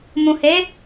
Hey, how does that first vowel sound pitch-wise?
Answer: low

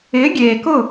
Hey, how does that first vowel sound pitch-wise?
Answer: rising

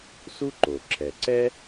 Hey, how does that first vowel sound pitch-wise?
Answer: high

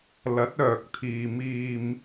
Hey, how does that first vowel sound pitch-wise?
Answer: rising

